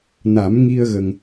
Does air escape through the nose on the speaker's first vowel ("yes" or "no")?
no